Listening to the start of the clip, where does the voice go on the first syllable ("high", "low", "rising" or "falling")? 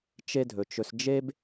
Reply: high